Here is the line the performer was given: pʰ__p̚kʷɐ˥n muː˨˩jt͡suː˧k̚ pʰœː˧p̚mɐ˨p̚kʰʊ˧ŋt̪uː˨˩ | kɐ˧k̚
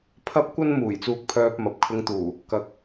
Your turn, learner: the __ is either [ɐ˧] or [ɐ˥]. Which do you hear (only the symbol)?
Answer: ɐ˥